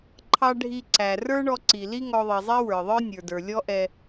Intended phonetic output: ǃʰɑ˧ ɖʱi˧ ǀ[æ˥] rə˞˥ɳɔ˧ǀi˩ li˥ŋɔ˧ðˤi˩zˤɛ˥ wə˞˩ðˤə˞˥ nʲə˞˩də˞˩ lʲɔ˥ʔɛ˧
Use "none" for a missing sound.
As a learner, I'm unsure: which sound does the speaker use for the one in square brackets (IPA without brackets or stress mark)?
æ˩